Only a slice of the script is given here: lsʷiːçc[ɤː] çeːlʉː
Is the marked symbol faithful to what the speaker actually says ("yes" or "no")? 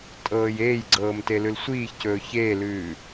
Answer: no